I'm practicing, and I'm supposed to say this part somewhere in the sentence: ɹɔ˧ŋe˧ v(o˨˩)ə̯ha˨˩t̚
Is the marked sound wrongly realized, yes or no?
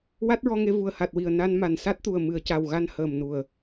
yes